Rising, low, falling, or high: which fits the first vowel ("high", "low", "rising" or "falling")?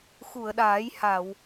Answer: low